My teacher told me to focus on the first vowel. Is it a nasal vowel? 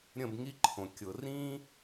yes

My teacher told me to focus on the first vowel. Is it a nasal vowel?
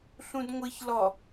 yes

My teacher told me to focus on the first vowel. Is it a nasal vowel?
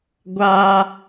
no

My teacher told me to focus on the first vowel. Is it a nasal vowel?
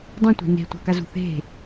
yes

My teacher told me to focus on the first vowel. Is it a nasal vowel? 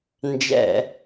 no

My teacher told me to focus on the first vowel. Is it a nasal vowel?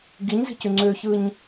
no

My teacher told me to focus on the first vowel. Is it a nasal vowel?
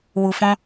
no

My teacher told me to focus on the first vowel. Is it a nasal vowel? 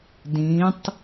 yes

